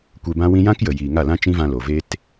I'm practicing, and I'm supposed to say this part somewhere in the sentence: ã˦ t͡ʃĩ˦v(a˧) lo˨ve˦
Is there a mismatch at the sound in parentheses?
yes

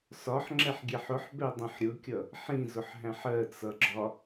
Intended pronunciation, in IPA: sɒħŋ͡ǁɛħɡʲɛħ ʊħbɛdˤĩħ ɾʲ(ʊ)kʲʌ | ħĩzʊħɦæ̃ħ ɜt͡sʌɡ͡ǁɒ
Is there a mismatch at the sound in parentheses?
no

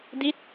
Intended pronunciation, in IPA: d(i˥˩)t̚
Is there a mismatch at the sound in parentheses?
yes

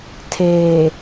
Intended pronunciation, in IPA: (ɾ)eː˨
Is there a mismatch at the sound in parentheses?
yes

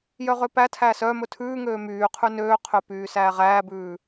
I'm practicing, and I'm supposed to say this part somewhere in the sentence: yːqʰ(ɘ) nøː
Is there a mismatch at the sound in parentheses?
yes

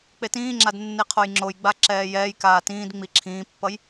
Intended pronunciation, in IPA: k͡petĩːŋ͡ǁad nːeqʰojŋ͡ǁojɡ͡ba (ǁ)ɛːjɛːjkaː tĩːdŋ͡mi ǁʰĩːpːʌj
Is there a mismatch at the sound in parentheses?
no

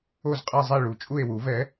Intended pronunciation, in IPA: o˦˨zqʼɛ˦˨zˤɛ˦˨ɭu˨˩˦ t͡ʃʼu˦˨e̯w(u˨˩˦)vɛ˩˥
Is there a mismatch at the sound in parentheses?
no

